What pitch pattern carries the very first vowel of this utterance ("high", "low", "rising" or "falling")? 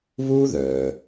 high